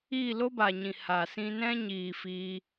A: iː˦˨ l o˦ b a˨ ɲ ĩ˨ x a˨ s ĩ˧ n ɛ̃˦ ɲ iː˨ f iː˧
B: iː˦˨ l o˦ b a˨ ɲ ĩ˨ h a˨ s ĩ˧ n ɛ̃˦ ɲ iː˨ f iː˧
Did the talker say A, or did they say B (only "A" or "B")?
B